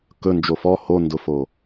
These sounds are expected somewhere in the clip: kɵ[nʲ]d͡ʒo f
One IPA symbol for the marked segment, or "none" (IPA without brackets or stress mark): n